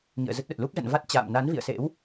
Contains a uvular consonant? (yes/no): no